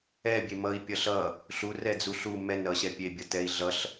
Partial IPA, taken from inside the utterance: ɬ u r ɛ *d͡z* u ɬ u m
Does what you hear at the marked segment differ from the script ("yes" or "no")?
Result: no